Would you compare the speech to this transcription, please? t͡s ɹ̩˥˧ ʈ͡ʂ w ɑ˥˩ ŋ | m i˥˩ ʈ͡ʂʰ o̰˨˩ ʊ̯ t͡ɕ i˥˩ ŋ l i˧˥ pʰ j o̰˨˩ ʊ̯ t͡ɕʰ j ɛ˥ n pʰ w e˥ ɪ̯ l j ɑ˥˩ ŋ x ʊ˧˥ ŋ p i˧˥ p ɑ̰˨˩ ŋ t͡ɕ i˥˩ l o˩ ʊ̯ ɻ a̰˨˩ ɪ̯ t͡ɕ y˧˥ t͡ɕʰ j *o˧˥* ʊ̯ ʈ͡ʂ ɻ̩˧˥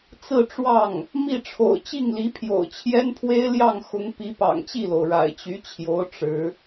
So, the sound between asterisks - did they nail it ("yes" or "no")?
yes